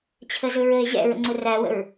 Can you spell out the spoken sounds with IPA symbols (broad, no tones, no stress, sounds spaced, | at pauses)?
t͡ɕʰ ə z ɵ ɹ ə e̯ ʑ ɛ̰ ɹ ə̰ ŋ͡ǀ ʊ r æ w ə̰ ɹ